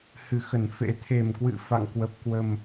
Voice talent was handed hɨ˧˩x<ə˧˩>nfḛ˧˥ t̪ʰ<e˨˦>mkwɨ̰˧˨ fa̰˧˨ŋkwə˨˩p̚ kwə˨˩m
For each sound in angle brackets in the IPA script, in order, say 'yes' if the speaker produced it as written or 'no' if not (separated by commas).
yes, no